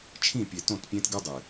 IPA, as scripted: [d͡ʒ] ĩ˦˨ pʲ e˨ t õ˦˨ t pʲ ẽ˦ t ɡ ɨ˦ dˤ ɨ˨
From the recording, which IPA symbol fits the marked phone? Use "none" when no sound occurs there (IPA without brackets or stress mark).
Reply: t͡ʃʰ